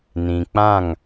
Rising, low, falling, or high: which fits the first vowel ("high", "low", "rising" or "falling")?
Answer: low